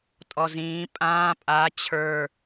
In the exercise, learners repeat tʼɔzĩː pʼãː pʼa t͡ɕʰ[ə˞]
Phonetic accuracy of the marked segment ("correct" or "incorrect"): correct